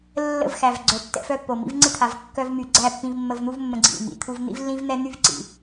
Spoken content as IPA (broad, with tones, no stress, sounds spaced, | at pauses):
lː ə̰˦˨ v x æ˨ v ɡ͡ǀ œ˨ tː ɛ̰˧ f œ˦ pː o˨ m ḭ˧ v ŋ͡ǀ ɪ˦ t̪ʰ a˨ v kː œ˦ v m y˨ ɡ͡ǀ æ˦˨ pː ĩ˧ v mː ə˧ v n̪ u˦ v mː ə̃˧ ɡ͡ǀ ḭ˦˨ m ḭ˨ t̪ʰ u˦ v n̪ ḭ˦ v lː ĩ˦ v n̪ ɛ˦ n̪ y˦ v ǀ ḭ˨